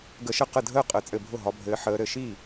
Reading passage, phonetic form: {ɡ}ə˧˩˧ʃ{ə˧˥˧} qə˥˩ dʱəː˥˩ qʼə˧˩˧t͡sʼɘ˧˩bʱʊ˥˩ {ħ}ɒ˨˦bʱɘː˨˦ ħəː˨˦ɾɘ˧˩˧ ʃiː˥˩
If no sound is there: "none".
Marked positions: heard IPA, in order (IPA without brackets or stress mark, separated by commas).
ɡ, ə˥˩, ɦ